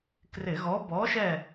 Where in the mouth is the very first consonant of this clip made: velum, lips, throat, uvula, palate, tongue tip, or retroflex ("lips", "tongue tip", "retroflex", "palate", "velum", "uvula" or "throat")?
velum